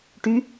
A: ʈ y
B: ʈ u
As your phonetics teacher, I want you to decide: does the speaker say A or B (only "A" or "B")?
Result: A